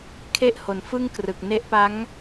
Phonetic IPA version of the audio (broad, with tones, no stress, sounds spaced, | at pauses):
kʰ e˥˩ ʔ h o˨˩ n f ɯ˥˩ ŋ k r ɯ˨˩ k̚ n e˦˥ ʔ p a˦˥ ŋ